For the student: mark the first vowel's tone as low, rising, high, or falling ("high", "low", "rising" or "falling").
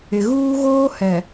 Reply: low